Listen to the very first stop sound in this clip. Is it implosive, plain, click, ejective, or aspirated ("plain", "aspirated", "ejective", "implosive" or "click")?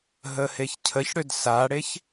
aspirated